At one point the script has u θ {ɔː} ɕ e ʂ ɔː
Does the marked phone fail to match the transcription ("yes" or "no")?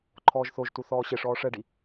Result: no